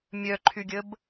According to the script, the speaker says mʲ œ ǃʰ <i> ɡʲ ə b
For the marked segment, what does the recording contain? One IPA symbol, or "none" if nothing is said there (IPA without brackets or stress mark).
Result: y